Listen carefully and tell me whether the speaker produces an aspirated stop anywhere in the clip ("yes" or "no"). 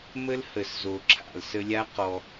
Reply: yes